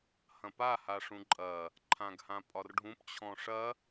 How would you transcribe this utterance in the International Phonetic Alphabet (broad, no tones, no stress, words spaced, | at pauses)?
hɐ̃pa haʂũǃʼɐ | ǃʰãɡhãpʼɒrɖʱũp t͡ɕʰɔ̃ʂɐ